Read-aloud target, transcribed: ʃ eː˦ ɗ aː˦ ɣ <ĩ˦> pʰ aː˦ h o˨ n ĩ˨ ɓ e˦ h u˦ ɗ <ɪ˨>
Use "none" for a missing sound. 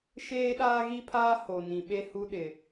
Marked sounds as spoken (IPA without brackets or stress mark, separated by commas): i˦, ɪ˨